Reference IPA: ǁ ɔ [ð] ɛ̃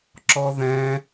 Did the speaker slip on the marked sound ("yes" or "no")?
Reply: no